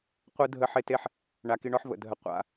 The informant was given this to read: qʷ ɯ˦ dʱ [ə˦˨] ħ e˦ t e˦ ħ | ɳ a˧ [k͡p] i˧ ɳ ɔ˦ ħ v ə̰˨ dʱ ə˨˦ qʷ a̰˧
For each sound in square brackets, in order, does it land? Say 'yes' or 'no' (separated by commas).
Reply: yes, no